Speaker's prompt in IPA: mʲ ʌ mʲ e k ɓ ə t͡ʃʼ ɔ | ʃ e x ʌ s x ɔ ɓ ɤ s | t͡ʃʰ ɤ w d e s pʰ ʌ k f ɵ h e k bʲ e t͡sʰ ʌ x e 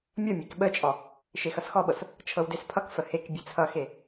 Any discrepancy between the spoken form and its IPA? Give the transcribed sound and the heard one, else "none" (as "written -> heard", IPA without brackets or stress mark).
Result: ɵ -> ə